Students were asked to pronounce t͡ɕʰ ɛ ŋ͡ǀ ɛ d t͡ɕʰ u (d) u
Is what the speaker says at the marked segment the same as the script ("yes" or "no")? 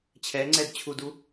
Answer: yes